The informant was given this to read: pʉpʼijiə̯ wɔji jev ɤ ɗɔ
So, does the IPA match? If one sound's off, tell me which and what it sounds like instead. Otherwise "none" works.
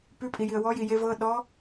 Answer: none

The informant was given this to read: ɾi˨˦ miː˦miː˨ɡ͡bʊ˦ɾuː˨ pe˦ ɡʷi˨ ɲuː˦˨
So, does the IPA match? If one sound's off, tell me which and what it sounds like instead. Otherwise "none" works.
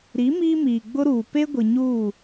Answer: none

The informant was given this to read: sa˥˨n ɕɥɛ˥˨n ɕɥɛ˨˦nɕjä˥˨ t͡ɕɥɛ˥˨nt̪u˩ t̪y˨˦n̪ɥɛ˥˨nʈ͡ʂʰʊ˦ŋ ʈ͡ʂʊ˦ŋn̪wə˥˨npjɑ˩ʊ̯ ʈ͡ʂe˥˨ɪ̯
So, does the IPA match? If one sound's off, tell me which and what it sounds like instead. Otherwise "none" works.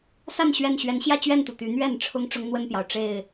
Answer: none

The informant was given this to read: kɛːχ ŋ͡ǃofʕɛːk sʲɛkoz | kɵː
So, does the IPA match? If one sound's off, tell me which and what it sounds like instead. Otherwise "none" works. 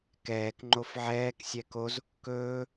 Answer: χ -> k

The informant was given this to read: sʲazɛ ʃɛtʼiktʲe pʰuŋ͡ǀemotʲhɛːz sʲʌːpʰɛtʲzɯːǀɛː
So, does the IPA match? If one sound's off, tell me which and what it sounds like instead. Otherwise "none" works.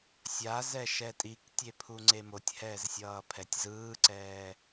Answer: none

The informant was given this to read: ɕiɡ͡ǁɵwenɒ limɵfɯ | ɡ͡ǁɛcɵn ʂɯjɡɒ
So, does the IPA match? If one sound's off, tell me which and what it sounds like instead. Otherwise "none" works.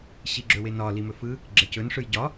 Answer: ɡ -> ɟ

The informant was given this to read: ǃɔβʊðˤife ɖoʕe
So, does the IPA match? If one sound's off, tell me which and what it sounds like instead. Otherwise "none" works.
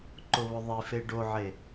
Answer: ɔ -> ʊ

